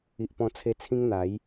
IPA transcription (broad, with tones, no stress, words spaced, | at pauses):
i˨ʔpɔ̃˧t͡sʰe˧t͡sʰĩ˦ŋ n̪a˨˦j